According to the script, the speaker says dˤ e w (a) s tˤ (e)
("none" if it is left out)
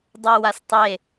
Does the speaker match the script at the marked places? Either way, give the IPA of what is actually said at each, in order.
a, e

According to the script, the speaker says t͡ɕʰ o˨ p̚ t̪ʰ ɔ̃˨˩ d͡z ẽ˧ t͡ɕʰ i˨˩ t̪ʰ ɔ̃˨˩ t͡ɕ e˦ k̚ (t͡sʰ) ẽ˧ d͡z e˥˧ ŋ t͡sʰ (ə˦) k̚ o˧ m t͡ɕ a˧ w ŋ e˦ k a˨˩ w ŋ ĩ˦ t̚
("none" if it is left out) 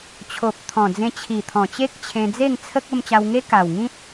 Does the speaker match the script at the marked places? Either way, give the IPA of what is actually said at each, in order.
t͡ɕʰ, ə˦

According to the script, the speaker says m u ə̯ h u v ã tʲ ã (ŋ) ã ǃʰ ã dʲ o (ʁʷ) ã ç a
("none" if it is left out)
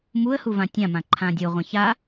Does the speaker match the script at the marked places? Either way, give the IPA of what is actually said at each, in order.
m, ʁʷ

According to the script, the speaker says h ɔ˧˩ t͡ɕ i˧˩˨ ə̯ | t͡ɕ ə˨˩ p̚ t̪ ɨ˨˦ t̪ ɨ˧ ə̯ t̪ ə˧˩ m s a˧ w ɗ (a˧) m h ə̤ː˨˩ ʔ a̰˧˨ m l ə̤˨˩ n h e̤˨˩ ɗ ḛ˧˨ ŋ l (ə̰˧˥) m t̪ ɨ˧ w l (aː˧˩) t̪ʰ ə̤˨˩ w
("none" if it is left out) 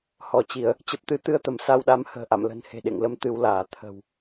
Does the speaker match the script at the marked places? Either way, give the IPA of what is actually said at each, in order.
a˨˦, ə˧, aː˧˩

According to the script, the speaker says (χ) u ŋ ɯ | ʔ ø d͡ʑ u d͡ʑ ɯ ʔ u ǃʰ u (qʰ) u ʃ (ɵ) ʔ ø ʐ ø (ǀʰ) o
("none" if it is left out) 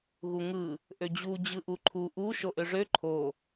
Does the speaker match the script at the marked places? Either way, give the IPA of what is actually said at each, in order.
ɣ, ʔ, o, ǃʰ

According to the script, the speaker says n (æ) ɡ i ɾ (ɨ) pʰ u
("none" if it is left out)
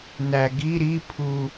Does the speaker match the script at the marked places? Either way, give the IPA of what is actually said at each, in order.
æ, i

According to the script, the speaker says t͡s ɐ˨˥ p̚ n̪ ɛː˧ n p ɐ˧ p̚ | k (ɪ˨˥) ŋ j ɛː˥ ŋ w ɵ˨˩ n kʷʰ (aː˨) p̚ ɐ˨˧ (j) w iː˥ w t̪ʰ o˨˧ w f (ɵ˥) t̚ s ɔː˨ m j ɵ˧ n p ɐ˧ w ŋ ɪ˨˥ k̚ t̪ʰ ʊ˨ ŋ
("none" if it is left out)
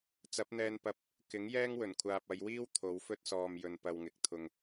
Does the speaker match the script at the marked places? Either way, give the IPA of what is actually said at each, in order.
ɪ˨˥, aː˨, j, ɵ˥

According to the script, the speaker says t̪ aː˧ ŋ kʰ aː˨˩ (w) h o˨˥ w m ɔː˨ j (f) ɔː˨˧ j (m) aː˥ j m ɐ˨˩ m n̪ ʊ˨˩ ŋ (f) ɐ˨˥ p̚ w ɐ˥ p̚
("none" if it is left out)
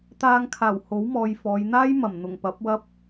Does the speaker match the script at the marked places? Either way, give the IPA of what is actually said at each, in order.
w, f, n̪, p

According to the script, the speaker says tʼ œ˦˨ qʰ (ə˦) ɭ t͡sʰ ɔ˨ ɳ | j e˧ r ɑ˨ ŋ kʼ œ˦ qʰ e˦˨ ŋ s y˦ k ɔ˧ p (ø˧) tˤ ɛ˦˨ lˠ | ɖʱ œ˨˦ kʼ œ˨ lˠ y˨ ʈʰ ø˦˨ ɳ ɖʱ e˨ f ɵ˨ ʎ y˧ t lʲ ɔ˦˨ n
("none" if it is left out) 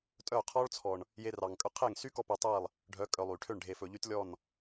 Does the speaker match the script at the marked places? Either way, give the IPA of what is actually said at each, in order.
ɔ˦, e˧

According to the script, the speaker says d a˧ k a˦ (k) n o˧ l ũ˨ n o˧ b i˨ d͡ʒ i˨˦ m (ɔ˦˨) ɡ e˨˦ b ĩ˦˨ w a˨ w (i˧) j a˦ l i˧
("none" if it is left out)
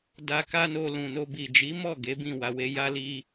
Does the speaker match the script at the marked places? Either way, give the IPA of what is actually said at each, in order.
none, ɔ˦˨, e˧

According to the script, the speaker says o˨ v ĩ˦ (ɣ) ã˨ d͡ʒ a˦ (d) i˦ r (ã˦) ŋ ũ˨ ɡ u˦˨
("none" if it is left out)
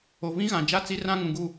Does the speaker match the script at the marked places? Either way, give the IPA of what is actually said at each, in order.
ɣ, t͡s, ã˦

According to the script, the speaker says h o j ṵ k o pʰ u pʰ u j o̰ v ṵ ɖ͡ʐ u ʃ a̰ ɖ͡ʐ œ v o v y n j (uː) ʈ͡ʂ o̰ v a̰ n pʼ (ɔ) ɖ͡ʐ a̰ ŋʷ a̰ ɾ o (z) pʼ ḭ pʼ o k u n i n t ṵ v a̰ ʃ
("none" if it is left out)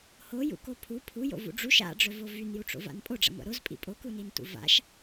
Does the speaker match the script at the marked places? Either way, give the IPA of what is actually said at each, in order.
u, o, z

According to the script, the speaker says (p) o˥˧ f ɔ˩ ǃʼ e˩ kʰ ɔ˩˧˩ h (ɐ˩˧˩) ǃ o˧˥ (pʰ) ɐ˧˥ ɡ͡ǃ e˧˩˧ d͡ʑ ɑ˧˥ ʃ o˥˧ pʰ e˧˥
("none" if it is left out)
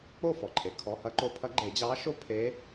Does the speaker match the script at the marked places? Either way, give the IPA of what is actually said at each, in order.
k͡p, ɐ˧˥, pʰ

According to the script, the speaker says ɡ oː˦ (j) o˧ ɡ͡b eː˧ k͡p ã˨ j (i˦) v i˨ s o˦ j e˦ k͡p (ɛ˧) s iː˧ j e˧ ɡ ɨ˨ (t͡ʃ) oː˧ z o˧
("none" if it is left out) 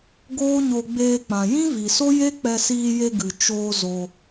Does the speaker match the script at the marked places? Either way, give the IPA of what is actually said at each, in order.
ɲ, ĩ˦, ɛ˧, t͡ʃ

